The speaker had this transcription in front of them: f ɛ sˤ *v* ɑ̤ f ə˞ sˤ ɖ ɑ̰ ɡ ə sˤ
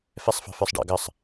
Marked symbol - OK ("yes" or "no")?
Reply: no